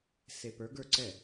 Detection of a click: present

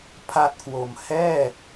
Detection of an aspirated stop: present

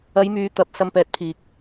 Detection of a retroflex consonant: absent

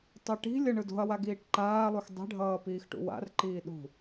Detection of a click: present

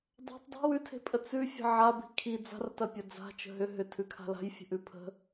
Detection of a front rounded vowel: present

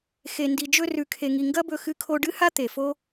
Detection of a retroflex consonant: present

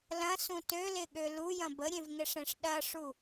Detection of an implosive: present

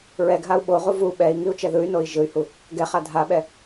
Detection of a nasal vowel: absent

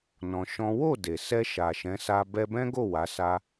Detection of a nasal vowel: present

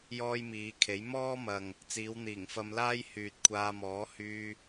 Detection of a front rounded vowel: present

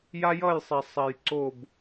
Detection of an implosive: absent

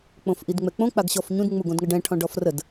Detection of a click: absent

